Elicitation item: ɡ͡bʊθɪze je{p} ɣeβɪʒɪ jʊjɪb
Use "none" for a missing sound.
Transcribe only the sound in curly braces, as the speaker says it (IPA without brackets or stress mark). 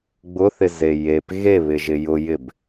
p